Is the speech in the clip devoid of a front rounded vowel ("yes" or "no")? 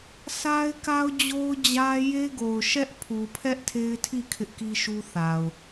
yes